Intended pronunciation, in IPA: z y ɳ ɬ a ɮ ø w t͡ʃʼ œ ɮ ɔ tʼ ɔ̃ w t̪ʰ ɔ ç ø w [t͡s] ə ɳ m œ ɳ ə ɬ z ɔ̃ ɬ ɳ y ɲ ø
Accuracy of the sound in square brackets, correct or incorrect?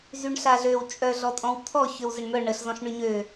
incorrect